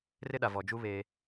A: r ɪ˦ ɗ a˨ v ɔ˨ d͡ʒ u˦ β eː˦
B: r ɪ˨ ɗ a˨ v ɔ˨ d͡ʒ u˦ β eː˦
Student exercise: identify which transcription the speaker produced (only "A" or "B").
A